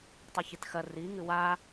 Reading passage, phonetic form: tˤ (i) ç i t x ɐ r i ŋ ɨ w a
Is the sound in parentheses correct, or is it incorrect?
correct